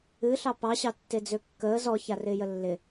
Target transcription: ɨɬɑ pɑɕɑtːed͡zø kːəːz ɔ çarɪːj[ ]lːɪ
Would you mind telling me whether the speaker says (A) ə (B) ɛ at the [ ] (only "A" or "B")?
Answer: A